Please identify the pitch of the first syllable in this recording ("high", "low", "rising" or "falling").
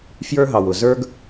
high